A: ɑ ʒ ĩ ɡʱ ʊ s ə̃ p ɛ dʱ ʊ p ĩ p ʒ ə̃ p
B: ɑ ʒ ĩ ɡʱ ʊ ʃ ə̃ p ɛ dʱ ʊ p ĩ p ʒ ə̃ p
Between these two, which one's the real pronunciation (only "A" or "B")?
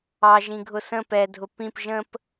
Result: A